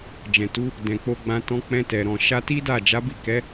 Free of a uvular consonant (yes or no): yes